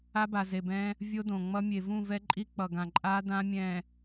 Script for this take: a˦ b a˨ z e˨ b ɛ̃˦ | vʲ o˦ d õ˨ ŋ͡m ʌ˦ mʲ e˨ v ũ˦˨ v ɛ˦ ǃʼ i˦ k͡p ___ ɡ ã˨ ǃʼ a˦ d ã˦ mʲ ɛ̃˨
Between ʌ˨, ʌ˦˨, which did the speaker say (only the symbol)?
ʌ˨